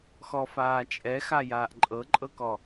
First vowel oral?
yes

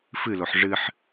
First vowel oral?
yes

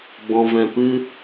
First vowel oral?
no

